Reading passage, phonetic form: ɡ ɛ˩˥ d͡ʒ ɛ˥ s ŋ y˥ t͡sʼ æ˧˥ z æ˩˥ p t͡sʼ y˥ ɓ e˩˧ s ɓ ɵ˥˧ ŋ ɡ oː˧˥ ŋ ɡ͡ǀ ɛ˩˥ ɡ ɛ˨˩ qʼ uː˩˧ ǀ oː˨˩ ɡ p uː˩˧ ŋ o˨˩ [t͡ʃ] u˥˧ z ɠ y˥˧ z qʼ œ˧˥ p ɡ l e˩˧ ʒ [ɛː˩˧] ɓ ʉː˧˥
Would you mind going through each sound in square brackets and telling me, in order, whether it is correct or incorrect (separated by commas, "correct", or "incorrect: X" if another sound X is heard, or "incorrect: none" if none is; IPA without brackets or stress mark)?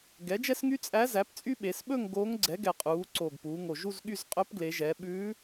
incorrect: ʒ, correct